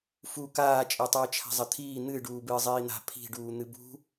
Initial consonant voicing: voiceless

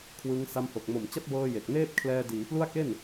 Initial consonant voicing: voiceless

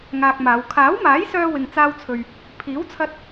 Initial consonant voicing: voiced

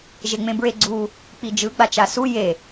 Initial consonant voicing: voiced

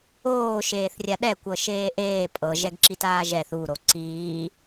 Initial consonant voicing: voiceless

